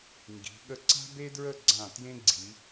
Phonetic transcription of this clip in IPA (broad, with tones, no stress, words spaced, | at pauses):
ŋɡi̤˩˧ ɠə˧ǀa̤˥be˥dɹə˥˧ ɡ͡ǀã˧˩tjẽ˥ɡ͡ǀi˩˧